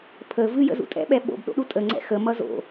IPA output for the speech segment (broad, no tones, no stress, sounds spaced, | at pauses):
pʰ ə v ɨ j ə̰ z ṵ tʼ ɛ̰ ɓ ɛ ɓ o̰ b ɗ o̰ ɗ u tʼ ə ŋ͡ǀ ɛ̰ x ə m ʌ z o̰